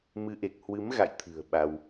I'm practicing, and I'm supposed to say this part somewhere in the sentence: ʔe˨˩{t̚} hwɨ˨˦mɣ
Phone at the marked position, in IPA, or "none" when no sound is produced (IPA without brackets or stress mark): k̚